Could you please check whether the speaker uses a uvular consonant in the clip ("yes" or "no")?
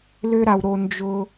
no